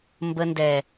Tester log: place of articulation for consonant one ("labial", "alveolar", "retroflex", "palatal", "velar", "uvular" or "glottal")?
labial